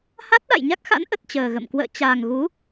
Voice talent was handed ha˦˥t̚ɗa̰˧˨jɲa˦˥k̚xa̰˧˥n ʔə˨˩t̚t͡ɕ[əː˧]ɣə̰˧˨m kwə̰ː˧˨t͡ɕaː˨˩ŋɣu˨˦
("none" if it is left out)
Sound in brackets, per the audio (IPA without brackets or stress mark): əː˨˩